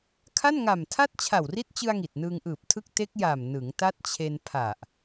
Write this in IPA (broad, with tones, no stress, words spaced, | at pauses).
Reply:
kʰa˥˩nŋa˨˩mtʰa˥˩t̚ t͡ɕʰa˨˩wri˦˥t̚t͡ɕɯ˧a̯ ŋi˨˩t̚nɯː˧ŋʔɯː˨˩p̚ tʰɯ˦˥k̚te˦˥k̚ ja˨˩m nɯ˩˦ŋ ta˦˥t̚t͡ɕʰe˧npʰa˨˩ʔ